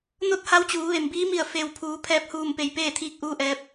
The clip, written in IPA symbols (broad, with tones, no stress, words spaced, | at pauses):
no˥˨t̚ha˧˥w t͡ɕuː˩˧ʋe˩m biː˧˥mi˧˩ə̯ fe˩wpʰuː˩˧ pʰɛː˧˩p̚huː˧˩mpe˩j peː˥˨t̪ʰiː˧˥k̚ʔuː˧ ʔɛː˧˥p̚